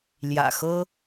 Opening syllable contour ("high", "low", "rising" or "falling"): low